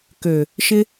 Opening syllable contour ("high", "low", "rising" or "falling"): low